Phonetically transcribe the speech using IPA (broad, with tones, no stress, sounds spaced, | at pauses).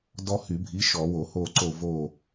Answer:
d ɔ˦ h y˧˩˧ bʱ i˨˥ ʃ ɔ˧˩˧ w o˧˩˧ h o˦˨ ǀ o˦˨ v o˦˨